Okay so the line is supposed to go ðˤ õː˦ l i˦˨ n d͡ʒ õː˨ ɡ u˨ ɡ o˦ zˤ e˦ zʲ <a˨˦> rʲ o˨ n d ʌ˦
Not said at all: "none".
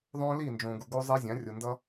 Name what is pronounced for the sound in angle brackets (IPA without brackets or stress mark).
ã˨˦